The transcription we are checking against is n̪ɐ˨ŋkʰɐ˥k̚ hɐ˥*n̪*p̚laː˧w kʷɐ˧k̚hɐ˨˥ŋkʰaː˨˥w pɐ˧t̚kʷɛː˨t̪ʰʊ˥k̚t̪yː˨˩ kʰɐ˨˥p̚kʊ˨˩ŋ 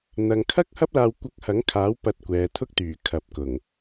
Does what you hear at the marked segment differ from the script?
yes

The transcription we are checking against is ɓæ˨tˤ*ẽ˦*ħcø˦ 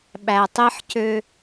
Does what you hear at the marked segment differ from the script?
yes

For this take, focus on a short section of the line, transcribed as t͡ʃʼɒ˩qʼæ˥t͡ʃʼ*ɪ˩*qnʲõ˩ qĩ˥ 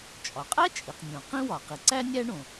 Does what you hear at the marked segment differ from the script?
yes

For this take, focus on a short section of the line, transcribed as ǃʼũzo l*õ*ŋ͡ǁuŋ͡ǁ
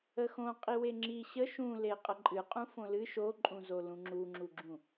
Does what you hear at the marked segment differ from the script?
yes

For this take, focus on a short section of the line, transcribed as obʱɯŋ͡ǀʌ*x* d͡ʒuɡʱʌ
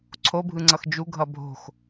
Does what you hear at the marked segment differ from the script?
no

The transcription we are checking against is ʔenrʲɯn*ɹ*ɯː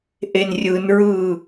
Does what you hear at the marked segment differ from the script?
no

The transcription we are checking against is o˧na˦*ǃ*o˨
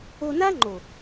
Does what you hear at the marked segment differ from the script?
yes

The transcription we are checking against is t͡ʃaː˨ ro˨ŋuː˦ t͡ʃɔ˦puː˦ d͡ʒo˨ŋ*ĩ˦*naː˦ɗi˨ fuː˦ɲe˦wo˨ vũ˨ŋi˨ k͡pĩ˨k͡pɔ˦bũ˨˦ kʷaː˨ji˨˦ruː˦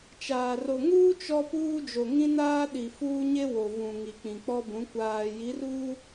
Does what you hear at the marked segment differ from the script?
no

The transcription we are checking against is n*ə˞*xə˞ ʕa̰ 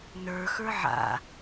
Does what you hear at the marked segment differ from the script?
no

